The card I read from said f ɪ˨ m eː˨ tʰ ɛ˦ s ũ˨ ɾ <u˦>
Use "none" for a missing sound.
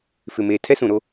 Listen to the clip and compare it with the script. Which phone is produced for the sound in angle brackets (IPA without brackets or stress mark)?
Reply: o˦